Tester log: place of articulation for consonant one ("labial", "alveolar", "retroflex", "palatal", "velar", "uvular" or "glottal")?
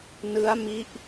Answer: alveolar